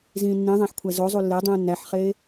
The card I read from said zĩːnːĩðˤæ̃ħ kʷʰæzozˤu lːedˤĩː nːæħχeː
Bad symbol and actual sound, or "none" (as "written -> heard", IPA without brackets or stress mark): none